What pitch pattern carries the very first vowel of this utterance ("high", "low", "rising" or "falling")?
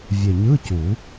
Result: low